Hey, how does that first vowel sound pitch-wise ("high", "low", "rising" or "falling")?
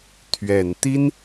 low